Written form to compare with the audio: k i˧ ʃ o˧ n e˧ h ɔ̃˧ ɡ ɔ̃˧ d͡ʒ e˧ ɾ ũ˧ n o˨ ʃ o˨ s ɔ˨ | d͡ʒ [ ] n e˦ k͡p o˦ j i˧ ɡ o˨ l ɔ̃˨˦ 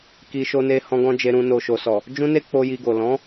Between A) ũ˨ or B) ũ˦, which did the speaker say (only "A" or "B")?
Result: B